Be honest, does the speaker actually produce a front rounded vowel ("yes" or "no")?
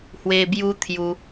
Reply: no